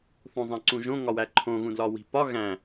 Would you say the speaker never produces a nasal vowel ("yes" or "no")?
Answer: no